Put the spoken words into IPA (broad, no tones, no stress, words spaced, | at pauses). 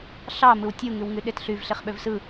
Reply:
ɬɑ mɯwtʲu ŋywŋyɗetɬyv ɬeχɓøvsɯ